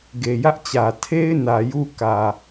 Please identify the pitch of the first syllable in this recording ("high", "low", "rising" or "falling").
low